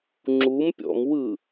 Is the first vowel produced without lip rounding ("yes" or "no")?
no